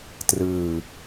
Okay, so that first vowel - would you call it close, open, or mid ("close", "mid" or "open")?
close